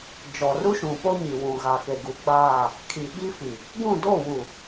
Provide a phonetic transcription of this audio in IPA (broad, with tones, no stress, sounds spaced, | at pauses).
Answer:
d͡ʒ ɔ˨ r u˦ ʃ ũ˨ p o˦ ɲ i˨ w ũ˨ ɣ a˨ k e˨ ɡ u˨ ɡ͡b aː˦˨ | kʰ i˨ ɓ i˦ f i˨ | ɡ ũ˦˨ d o˦˨ w u˨